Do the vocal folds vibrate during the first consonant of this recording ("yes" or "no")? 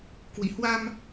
no